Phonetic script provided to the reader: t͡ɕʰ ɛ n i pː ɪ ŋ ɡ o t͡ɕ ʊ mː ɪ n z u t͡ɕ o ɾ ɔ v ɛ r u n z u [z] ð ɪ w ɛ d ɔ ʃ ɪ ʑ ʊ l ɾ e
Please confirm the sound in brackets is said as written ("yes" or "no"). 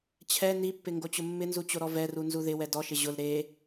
no